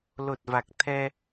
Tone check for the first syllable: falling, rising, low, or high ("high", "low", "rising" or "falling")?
low